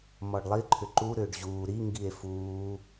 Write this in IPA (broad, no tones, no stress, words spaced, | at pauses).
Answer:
mɔɖlˠiǃʰʏ ǃuɾʏːɖ ʑuː ɾiŋɡie̯ fuː